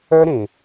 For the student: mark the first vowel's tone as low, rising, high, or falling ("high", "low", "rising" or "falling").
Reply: high